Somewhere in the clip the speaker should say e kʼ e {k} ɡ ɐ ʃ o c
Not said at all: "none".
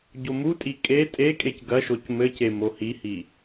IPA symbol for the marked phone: c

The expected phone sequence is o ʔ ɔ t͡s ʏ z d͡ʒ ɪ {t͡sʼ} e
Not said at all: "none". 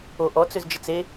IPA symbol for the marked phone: t͡s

